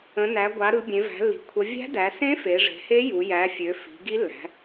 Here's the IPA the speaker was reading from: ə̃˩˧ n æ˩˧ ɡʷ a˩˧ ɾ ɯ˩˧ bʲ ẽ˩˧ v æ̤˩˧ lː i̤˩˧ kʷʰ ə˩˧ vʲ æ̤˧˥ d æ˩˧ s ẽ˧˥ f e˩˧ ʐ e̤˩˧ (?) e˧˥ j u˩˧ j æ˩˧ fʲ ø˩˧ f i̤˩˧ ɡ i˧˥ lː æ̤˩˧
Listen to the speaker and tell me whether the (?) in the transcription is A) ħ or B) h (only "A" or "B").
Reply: B